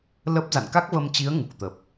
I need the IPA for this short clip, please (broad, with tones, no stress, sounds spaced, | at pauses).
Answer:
l ə˦˥ p̚ z a̰˧˨ n k a˦˥ k̚ v ə˧ m t͡ɕ i˨˦ ə̯ ŋ u˨˩ k̚ t̪ ə˨˩ p̚